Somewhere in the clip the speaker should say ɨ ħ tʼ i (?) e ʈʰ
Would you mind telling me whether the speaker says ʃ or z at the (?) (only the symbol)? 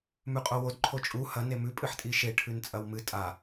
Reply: ʃ